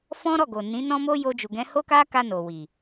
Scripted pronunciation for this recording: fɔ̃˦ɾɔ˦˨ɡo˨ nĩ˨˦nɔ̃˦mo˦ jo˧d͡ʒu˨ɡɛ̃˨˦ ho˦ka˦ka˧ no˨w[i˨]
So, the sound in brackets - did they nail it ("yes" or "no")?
yes